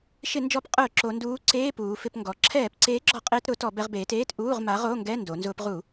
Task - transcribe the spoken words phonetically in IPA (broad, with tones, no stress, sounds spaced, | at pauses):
ʃ ɪ˧˩˧ n d͡ʒ ɔ˧˩˧ p qʼ ʊː˧˩˧ ǁ o˩˧ n d uː˨˥ ǀ eː˧˥˧ p uː˩˧ f ɪ˧˩˧ p ŋ ɡ ɔ˩˧ ǁʰ ɛː˧˩˧ p ǀ eː˨˥ ɡ͡ǁ ɔ˧˩˧ qʼ ɪː˧ t ɾ ʊ˧˩˧ t ɔ˧˩˧ b ɛ˧ ʁ b eː˩˧ t eː˧˥˧ t ʔ uː˧˥˧ ʁ m a˨˥ ʁ o˧˥˧ ŋ ɡ ɛ˧˥˧ n d o˩˧ n z ʊː˧ p ʁ u˧˩˧